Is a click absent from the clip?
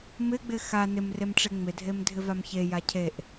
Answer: yes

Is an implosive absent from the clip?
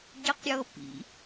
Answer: yes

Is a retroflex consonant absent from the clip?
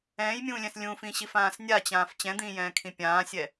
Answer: yes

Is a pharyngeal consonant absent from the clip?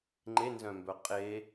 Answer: yes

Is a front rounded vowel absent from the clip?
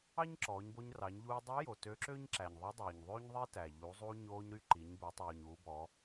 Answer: no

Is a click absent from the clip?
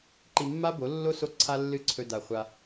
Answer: no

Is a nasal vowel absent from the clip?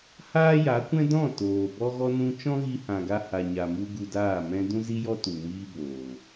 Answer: no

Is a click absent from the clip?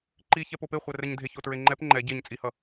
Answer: no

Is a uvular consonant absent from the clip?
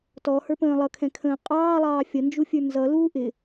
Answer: no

